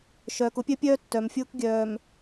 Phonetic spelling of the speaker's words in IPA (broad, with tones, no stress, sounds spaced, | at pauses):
ʃ œː˨ k ʊ˦ pʲ œ˦ pʲ œː˦ tː œ˨ m fʲ ʊː˦ k ɡʲ œː˨ m